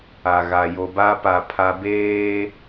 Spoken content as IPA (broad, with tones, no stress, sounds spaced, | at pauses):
a˨ ɣ a˨ j o˨ b a˦ p a˨ pʰ a˨ b eː˦